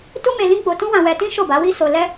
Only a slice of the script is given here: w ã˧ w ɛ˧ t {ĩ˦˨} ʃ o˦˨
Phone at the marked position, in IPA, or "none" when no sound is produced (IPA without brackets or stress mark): ĩ˦